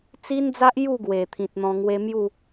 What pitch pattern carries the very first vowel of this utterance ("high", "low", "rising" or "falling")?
high